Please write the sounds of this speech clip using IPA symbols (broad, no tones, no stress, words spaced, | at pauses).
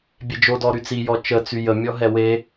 bʲed͡ʒodɔ ɾyt͡sijɔ t͡ʃət͡sy jə mʲɔɦɛwe